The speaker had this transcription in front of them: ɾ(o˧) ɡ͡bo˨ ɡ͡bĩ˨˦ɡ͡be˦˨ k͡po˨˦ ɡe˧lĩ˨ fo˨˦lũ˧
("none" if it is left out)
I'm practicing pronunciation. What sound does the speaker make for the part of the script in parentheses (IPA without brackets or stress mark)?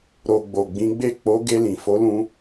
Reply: o˨